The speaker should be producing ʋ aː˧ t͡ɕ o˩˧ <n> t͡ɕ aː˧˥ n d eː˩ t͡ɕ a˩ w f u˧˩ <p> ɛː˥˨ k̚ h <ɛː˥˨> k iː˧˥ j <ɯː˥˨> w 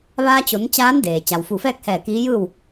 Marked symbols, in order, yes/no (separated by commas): yes, no, no, yes